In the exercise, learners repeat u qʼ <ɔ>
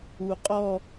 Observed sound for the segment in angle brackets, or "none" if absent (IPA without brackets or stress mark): ɔ